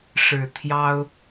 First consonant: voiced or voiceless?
voiceless